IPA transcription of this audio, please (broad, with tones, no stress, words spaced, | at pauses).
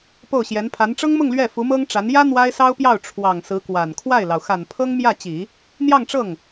po˥˩ʊ̯ɕjɛ˧˥npʰa˧˥n ʈ͡ʂɤ˥ŋmʊ˥˧ŋ lɥɛ˥˩ fu˧˥mɤ˥ŋ ʈ͡ʂa˧˥n jä˥ n̪wa˥ɪ̯sɑ˥ʊ̯pjɑ˥˩ʊ̯ ʈ͡ʂʰwɑ˨˩ŋ sɹ̩˧˥kwa˨˩n kʰwa˥˩ɪ̯lɑ˩ʊ̯ xa˨˩n pʰɤ˥ŋ mjä˥˩t͡ɕi˨˩˦ | n̪jɑ˥˧ŋʈ͡ʂɤ˥˩ŋ